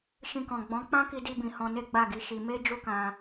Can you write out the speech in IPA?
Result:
ʃ ĩ˧ k ɔ̃˨ ɡ͡b ɔ̃˨˦ k͡p ã˦ k i˧ d i˧ b ĩ˨ h ɔ̃˧ n e˦ ɡ͡b a˦˨ ɡ i˨˦ ʃ i˧ m e˦ d͡ʒ u˦ k ã˧

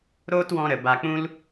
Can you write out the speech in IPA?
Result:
ɾ oː˦ t w ɔ̃˧ ɾ ə˨ b a˧ k͡p ũ˦ l

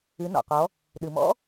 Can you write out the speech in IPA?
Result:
ɨ˩˧ n ɔ̰˩ q ɔ˩˧ | ɗ ɨ˩ m ɔ̰˧˥

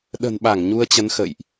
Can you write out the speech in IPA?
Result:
ɗ ə̤˨˩ n ɓ a˧˩ ŋ ɲ u˧ ə̯ t͡ɕ ə˨˦ n x ə̰˧˨ j ʔ

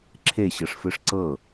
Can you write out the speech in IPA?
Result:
ǁʰ e ɕ ɤ ʂ f ɯ ʂ ǀ ɤ

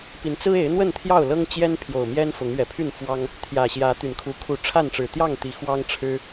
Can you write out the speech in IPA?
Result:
p i˨˦ n t͡s ɹ̩˦ e˨˦ ɪ̯ n̪ w ə˥˨ n t̪ʰ j ɑ˥˨ ʊ̯ l ɤ˦ ŋ t͡ɕ j ɛ˦ n pʰ j o˨˩ ʊ̯ m j ɛ˦ n f ʊ˨˦ ŋ ɥ ɛ˨˩ pʰ y˥˨ n f w ɑ˦ ŋ | t̪ʰ j ä˨˩ ɕ j ä˨˦ t̪ y˨˩ n kʰ u˨˦ kʰ u˨˦ ʈ͡ʂʰ a˥˨ n ʈ͡ʂ ɻ̩˨˩ t̪ j ɑ˥˨ ŋ t̪ i˨˦ x w ɑ˦ ŋ ʈ͡ʂʰ ɻ̩˦

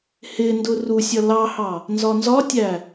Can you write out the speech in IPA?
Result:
h ɪ n d ʊ r u sʲ ʌ l ɑ h ɑ | n z ɒ n z ɒ tʲ æ

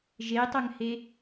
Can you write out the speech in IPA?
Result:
ʒ e tˤ œ ŋ h e

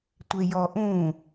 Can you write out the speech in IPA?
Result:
tʷ e j ɔ ʔ ũ

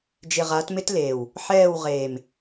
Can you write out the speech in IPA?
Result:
d͡ʒ ɪ˨ ʁ a˨˦ t m ɪ˦ t l eː˨ w | ħ ɛː˦˨ w ʁ eː˨ m

